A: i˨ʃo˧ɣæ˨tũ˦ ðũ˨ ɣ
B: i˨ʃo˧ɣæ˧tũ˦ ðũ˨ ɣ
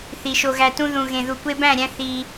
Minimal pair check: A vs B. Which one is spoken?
B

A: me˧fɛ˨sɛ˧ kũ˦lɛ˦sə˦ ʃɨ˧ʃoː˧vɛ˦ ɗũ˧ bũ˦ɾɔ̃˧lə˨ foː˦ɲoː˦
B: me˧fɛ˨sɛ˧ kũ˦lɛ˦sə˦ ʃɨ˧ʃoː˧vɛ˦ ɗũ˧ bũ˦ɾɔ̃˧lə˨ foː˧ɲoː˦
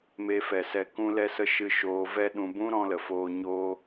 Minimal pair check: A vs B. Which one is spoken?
B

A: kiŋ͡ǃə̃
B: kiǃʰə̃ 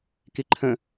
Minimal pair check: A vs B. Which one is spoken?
B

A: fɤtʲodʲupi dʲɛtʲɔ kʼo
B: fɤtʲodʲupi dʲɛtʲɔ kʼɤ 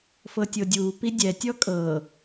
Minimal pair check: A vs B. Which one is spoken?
B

